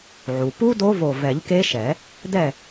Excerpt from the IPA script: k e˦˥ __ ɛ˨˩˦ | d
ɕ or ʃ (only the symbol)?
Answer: ʃ